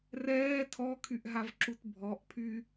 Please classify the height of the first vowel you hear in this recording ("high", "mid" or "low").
mid